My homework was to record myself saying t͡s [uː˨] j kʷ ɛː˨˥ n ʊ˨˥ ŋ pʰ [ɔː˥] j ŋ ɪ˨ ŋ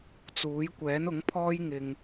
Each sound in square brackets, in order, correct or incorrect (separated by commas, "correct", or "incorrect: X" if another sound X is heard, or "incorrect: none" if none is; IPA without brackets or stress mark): incorrect: uː˨˥, correct